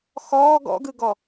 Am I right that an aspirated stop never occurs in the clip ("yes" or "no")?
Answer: yes